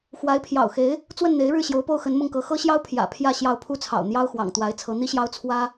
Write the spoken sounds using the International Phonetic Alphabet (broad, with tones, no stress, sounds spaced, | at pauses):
x w a˧˥ ɪ̯ pʰ j ɑ̰˨˩ ʊ̯ x e˧˥ ɪ̯ | t͡s w ə˥˩ n n̪ e˧˥ ɪ̯ ɻ ɻ̩˥˩ ɕ j o˧˥ ʊ̯ p o˥˩ ʊ̯ x ə˧˥ n m ʊ˥˩ ŋ k ɤ˧˥ x ɤ˥ ɕ j ɑ˥ ʊ̯ pʰ j ä̰˨˩ pʰ j ä˥˧ ɕ j ɑ˥˩ ʊ̯ pʰ u˥ t͡sʰ ɑ̰˨˩ ʊ̯ n̪ j ɑ˥ ʊ̯ x w ɑ̰˨˩ ŋ t̪ w a˧˥ ɪ̯ t͡sʰ ɤ˧˥ n̪ i˥ ɕ j ɑ˥ ʊ̯ t͡sʰ w ä˥